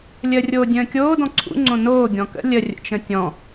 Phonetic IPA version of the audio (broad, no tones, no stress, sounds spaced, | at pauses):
lʲ əː rʲ oː dʲ ə̃ː kʲ oː d ɔ̃ ǀʰ ṵ ŋ͡ǀ õ n oː ɡʲ ɔ̃ k ə̰ lʲ ə rʲ ə̰ t͡ʃ ə̃ tʲ ɔ̃